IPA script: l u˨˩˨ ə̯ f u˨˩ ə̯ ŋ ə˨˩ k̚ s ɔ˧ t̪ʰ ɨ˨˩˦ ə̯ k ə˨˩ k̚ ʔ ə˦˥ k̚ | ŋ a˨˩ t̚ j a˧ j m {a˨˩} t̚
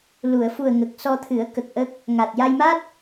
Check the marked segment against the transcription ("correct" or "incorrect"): incorrect